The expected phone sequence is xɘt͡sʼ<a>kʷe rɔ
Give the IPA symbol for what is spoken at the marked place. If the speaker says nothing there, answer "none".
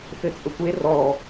ə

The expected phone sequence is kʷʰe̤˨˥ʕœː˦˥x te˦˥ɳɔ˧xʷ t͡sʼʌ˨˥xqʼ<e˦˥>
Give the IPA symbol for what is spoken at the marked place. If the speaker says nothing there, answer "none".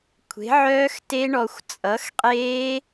e˦˥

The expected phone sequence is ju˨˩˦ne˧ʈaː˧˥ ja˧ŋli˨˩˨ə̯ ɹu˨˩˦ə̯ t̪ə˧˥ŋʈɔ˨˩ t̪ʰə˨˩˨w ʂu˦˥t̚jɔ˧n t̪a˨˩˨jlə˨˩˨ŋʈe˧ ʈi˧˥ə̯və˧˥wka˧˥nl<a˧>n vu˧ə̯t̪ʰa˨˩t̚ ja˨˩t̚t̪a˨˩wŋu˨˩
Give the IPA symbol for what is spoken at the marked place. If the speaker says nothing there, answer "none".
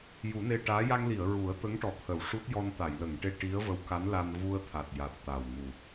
a˧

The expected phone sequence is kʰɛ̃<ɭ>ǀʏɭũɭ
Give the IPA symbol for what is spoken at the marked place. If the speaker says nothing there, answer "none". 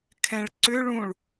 ɭ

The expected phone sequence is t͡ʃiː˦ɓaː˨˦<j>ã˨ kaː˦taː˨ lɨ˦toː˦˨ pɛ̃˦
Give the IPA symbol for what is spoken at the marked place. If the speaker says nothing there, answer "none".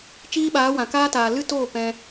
w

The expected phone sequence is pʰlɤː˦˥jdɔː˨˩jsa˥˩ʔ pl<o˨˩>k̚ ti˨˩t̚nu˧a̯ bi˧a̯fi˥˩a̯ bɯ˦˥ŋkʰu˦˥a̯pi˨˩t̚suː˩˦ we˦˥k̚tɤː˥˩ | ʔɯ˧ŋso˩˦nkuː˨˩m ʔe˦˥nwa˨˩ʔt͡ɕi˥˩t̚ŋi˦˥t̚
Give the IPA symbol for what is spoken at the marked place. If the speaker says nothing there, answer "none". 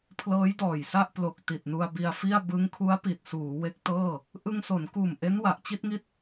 o˨˩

